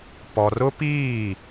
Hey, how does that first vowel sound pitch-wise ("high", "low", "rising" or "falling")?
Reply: low